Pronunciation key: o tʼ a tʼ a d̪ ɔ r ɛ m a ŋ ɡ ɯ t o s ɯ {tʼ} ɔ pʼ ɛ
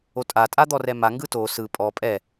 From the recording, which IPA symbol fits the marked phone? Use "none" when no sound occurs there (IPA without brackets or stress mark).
pʼ